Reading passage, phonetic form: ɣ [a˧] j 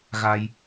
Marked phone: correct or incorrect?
correct